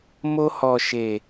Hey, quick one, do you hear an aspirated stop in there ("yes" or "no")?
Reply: no